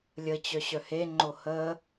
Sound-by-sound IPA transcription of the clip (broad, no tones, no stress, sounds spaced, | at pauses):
lʲ ə t͡ɕ œ ɕ œ h e ŋ͡ǃ o h ə